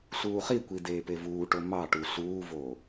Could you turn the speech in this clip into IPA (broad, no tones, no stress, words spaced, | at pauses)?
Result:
ɬuːχikʷi deːpevuːʈo mɑʈu ɬuːvoː